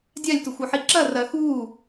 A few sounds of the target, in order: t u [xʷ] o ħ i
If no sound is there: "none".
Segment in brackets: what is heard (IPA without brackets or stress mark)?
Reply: xʷ